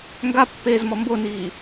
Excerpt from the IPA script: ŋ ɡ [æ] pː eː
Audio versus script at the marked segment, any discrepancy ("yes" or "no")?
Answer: yes